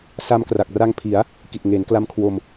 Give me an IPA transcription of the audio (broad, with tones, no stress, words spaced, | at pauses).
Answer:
sa˧mkra˨˩k̚ra˧ŋ pʰi˩˦a̯ | ki˨˩t̚ŋeː˩˦nkla˧m kʰwo˧m